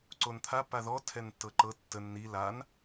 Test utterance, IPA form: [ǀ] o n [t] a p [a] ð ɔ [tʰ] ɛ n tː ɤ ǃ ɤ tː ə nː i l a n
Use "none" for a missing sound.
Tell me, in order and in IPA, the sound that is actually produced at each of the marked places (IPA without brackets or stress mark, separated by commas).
ǀ, t̪ʰ, a, tʰ